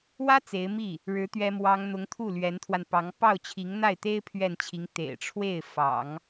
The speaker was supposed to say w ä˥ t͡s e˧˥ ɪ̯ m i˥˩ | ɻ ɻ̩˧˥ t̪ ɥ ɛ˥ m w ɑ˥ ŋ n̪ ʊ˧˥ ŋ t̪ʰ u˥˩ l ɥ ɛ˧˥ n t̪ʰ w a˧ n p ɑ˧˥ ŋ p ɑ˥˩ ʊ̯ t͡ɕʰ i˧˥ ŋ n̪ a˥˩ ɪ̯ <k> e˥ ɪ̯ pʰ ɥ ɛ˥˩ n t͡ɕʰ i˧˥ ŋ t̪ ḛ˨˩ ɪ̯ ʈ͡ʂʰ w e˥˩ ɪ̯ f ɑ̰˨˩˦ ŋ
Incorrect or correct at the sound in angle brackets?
incorrect: t̪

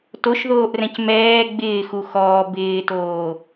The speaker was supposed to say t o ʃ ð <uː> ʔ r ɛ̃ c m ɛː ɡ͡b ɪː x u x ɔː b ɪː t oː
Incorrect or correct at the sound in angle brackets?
incorrect: oː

